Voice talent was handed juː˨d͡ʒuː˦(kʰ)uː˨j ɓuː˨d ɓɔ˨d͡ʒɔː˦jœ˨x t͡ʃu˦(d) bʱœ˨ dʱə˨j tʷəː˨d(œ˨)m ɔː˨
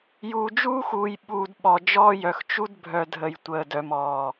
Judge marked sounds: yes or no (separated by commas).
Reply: no, yes, yes